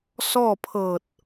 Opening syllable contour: falling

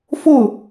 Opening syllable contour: falling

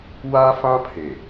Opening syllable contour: high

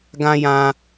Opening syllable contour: high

